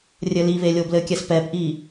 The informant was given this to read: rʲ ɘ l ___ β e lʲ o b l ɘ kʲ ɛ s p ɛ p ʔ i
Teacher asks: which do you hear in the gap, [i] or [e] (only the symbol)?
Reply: i